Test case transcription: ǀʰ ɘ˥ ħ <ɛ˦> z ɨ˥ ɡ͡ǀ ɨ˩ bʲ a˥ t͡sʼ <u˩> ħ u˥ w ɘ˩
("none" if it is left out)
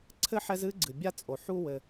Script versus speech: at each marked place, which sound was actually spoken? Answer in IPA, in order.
ɛ˦, o˩

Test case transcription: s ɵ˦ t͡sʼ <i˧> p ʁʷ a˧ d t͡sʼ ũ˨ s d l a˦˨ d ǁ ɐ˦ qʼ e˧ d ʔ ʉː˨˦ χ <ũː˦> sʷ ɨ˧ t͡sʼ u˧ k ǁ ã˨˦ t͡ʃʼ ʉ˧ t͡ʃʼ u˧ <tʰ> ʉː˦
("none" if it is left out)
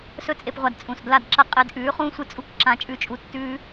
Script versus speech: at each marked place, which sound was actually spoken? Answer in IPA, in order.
e˧, ũː˦, tː

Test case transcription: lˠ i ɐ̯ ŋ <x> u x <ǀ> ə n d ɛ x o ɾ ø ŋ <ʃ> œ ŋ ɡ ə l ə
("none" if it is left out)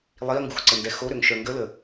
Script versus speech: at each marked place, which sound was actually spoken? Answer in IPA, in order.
ɡ, ǀ, ʃ

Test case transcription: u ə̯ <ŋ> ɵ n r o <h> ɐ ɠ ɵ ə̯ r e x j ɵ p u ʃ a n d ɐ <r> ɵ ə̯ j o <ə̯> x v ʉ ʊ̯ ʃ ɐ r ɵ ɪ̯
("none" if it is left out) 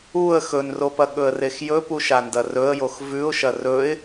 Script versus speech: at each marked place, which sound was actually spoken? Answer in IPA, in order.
x, p, r, none

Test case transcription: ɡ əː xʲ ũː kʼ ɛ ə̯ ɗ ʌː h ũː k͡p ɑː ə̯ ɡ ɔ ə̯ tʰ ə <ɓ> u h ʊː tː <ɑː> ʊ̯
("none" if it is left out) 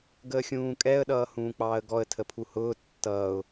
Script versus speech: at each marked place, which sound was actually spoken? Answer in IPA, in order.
pʰ, ʌː

